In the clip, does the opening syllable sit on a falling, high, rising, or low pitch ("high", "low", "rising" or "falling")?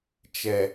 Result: low